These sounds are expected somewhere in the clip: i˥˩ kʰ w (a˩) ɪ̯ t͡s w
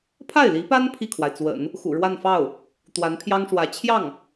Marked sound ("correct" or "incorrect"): correct